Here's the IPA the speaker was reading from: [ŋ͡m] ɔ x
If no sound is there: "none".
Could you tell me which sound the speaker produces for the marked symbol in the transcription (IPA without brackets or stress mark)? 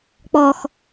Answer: k͡p